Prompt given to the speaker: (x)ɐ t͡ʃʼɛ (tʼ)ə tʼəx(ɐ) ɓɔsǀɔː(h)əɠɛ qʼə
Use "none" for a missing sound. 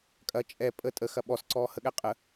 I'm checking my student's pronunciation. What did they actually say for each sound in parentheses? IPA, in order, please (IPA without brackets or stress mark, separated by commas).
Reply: kʼ, pʼ, ɐ, h